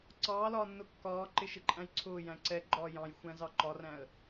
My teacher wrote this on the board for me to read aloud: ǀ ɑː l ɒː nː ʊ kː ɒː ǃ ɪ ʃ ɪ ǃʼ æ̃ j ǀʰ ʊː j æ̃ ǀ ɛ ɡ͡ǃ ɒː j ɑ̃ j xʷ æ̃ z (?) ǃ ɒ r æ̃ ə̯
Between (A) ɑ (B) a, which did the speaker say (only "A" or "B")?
A